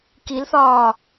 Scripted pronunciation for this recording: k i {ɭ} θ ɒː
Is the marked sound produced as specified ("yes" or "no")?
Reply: no